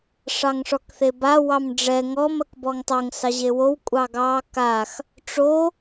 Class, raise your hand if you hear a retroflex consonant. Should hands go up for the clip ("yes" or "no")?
yes